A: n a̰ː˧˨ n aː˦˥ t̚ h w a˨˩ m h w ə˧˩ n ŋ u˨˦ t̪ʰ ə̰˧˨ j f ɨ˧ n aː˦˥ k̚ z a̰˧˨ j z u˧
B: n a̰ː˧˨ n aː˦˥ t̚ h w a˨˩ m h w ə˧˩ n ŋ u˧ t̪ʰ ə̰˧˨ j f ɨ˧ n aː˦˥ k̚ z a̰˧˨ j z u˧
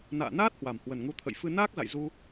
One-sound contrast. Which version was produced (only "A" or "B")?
A